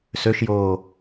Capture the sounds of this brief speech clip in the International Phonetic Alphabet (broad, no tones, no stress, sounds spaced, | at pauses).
s ø ʃ j oː